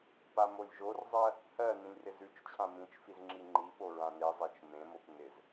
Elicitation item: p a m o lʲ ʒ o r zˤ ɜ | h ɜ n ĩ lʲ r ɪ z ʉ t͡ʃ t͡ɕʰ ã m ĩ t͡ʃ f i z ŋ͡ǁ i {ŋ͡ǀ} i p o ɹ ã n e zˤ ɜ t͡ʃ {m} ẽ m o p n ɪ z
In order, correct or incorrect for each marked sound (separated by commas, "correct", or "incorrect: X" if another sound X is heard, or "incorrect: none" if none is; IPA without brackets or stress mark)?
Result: incorrect: ŋ͡ǃ, correct